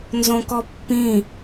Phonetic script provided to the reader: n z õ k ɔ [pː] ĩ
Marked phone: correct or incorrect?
correct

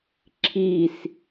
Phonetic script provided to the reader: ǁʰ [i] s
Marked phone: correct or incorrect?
correct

